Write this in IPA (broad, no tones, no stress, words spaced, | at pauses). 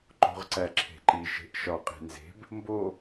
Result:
ǃo̤ʁǀæǁʰe̤ǃi ʃe̤ʔʃɒ qʼe̤nze̤b | mbo